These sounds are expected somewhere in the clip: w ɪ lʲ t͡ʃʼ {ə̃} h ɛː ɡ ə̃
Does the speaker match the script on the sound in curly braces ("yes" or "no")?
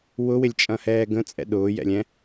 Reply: no